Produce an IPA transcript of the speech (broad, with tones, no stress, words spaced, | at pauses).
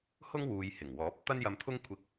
hʊ˥ŋwuː˨j hɪ˨˩ŋwɔː˨˥p̚ t̪ɐ˥njɐ˧mt̪ʰʊ˥ŋ kʷʰɪ˧k̚